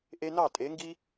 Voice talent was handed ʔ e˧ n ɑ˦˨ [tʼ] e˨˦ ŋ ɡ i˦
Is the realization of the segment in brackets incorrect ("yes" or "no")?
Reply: no